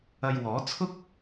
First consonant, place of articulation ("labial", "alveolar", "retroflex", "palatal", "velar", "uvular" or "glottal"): palatal